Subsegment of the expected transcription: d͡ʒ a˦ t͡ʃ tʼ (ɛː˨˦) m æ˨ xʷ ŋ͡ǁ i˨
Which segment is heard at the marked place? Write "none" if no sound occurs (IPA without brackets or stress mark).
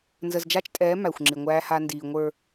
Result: ɛː˨˦